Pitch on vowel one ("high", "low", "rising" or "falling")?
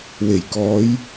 low